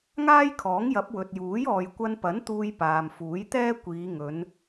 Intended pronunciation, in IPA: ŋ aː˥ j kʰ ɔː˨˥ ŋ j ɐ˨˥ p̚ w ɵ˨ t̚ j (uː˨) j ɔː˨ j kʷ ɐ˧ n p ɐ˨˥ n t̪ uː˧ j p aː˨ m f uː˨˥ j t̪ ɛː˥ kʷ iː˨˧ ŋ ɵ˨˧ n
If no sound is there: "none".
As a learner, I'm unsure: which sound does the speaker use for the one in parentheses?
uː˨˥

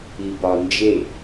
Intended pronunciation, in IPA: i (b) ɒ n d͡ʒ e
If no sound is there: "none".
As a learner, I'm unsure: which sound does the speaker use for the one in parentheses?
b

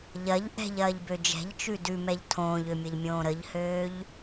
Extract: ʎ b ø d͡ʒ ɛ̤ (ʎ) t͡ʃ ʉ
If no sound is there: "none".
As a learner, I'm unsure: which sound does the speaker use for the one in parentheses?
ʎ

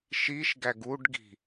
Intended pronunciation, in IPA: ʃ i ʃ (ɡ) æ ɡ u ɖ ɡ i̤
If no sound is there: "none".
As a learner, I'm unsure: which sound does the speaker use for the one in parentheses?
ɡ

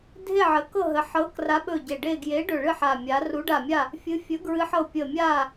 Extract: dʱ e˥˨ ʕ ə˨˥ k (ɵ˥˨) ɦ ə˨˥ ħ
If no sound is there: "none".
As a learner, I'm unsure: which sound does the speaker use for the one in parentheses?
ɤ˥˨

